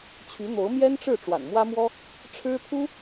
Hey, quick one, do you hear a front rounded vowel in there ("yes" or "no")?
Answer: yes